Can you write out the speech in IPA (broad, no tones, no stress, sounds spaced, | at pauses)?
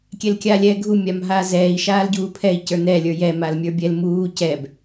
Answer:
kʲ ɛ l kʲ aː lʲ ɛː ɡʱ u mʲ a m ɦ aː z ɛː i̯ ʃ aː l ɟ uː pʰ ɛ i̯ c ə˞ n ɛ lʲ ə˞ j ɛ m a l mʲ ə˞ bʲ ɛ l m uː c ɛ b